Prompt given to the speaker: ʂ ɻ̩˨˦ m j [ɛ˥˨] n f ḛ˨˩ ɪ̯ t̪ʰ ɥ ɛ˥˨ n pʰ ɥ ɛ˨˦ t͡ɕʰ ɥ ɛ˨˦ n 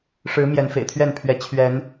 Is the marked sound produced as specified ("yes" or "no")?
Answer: no